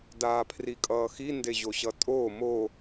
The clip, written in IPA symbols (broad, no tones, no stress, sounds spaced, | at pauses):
d aː pʰ r i kʼ ʌː x i n d e ʑ o ɕ ʌ tʼ oː m o